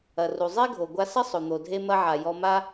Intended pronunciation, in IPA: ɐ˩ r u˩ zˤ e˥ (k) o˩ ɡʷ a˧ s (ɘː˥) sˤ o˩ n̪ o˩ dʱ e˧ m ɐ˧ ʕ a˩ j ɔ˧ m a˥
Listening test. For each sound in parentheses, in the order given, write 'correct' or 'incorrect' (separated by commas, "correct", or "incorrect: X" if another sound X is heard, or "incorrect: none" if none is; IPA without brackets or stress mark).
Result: incorrect: ɡʱ, incorrect: ɘ˥